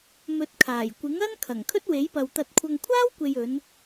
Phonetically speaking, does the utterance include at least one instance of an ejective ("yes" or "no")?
no